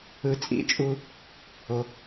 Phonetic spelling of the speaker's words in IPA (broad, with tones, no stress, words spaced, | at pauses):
ɯ˨t͡sʼḭ˨˦t͡ʃʼu˨ | o˨